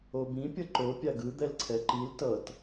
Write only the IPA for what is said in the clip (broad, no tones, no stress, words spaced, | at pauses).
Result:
obĩ pʲʌǃo pʲaɡɯ d̪ɛlǀʰɛǃil tʌt